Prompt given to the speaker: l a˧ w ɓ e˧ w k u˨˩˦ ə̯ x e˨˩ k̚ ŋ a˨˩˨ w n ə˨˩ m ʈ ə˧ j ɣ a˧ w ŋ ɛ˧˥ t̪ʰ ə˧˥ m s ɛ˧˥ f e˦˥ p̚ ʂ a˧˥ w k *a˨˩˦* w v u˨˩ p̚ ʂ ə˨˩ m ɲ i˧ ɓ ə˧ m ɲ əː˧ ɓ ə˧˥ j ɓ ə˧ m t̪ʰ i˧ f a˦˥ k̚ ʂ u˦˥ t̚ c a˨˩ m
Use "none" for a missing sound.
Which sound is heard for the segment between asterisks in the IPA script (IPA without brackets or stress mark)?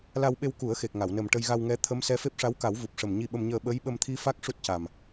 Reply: a˨˩˦